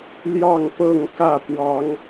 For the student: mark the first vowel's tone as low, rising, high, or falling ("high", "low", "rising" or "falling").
falling